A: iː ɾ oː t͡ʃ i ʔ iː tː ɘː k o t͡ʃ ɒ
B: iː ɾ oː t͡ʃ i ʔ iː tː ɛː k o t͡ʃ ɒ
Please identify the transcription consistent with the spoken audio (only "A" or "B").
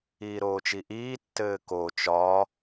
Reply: A